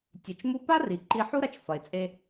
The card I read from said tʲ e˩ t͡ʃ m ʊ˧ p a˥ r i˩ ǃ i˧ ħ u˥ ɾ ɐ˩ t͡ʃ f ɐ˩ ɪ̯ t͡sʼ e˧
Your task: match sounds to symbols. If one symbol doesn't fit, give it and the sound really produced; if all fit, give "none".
ʊ˧ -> u˧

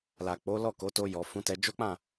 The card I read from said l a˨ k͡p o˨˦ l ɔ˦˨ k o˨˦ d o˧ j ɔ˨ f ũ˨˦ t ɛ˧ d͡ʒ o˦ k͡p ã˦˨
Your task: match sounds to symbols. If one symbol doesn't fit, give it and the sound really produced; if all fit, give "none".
d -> t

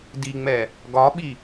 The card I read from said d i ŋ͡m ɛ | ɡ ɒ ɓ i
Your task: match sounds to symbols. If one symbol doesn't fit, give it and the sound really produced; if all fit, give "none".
none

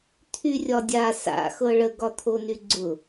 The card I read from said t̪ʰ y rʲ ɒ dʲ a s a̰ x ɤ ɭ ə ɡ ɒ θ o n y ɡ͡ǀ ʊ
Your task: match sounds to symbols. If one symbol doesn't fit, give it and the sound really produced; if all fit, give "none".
θ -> t̪ʰ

